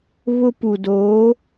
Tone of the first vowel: high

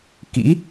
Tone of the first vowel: rising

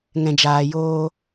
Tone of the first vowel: low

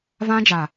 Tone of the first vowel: high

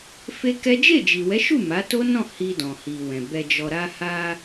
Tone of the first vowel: high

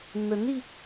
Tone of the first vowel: rising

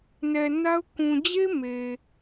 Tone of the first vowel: low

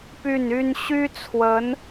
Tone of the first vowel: falling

